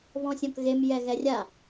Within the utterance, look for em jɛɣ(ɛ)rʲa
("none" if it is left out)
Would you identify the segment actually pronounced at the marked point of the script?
ɛ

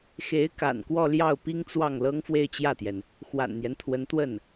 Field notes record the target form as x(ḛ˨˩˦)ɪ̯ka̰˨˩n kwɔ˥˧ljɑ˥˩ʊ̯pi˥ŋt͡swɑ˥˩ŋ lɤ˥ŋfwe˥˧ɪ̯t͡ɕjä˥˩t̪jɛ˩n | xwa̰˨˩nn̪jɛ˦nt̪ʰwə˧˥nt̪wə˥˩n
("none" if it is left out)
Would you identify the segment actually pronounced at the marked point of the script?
e˧˥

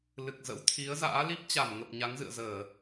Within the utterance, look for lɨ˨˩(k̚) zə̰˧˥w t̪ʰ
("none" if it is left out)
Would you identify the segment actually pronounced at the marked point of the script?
k̚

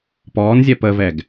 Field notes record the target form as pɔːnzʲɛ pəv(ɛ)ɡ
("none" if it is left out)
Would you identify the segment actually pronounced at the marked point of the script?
ɛ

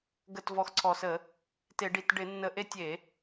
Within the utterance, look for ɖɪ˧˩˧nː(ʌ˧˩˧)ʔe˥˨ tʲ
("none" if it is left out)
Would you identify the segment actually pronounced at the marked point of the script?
ə˧˩˧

